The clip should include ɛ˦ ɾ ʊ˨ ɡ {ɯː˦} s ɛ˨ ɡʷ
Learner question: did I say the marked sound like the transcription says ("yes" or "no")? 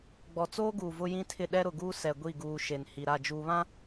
no